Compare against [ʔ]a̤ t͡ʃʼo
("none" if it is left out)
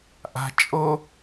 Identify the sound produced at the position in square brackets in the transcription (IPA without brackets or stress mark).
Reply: ʔ